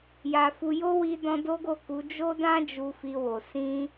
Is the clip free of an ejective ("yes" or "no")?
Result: yes